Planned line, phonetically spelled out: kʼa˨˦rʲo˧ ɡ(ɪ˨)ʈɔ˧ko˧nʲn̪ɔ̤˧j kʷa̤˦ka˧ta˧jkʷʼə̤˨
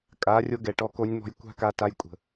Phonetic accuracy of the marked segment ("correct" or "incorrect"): incorrect